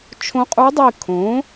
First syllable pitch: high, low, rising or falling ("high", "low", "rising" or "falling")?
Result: rising